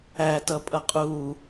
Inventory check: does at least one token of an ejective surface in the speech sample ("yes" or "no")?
yes